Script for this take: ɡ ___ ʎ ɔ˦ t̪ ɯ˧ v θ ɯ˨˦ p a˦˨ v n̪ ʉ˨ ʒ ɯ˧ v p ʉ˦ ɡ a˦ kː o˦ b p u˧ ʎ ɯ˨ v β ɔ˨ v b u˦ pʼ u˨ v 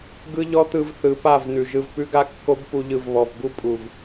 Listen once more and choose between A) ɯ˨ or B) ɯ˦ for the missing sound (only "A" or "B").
B